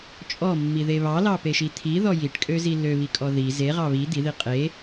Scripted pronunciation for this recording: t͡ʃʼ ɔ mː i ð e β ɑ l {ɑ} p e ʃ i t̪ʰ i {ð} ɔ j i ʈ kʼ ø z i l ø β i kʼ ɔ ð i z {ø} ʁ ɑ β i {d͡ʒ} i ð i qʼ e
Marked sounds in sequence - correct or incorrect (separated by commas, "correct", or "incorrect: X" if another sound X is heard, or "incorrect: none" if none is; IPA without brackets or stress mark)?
correct, correct, incorrect: e, incorrect: d̪